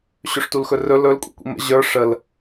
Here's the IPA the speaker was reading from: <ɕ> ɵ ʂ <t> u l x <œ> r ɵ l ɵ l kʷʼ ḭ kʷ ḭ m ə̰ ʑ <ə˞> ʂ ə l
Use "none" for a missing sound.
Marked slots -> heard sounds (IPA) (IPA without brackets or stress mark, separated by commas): ɕ, t, ɵ, ə˞